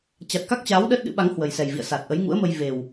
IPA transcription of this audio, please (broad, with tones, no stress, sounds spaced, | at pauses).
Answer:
t͡ɕ a˨˩ t̚ k a˦˥ k̚ t͡ɕ aː˨˦ w ɗ əː˦˥ t̚ ɗ ɨ̰˧˥ ɓ a˨˦ ŋ h w ə˨˩ j s ɛ˨˩ j v ḭ˧˨ ə̯ s a˨˩ t̚ ʔ ə˨˦ j ŋ ṵ˧˥ ə̯ m ə˧ j v e˨˩ w